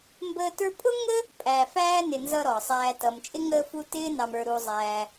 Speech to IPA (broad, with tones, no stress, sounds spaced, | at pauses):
m b əː˦ t ə˞˥ pʼ ʊ˥ ŋ ə˥ | pʼ æ˨ f æː˥ n ɪ˨ n z ʌ˦ ɾ ɔ˩ sˤ æː˨ t ʌ˩ m t͡ʃʼ ɪ˥ ŋ əː˦ f u˦ t ɪː˥ n ɑ˨ m ə˞˨ ɾ u˨ zˤ æː˨